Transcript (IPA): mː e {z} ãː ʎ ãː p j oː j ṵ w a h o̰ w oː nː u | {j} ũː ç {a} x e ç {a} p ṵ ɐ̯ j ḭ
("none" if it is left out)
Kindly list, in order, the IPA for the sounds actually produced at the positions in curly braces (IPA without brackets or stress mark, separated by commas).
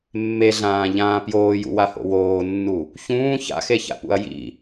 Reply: ɮ, ç, a̰, a̰